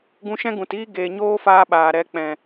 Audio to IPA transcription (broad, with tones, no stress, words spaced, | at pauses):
ɡũ˧ʃɛ̃˦ɡũ˨tiː˦ ɡeː˨ɲoː˦faː˧ ɓaː˨ɾɛ˧k͡pɛ̃˨